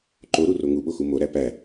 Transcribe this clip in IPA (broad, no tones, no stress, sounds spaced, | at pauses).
ǃ o ɾ u r o ŋ u ɓ o x u m o ɾ æ p æ